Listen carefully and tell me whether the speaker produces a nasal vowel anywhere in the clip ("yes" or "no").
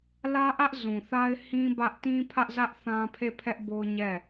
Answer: yes